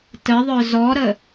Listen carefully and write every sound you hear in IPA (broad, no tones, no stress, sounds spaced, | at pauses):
t ə ðˤ œ z ɔ ɾ ə